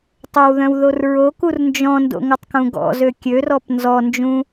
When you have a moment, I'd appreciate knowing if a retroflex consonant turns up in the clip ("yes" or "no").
no